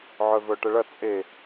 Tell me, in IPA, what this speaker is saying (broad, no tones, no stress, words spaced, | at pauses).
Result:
ʕœvœʈəɭɐ t͡sʼe